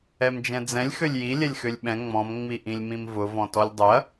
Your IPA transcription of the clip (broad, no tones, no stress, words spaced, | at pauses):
ɛmd͡ʒɛ̃d͡zɛ̃lʲ xølʲji lʲɛlʲxølʲɓɛ̃ ŋ͡mɔ̃m ŋ͡miʔĩlʲmĩmvʊ vɔ̃tɔlʲdˤʏɐ̯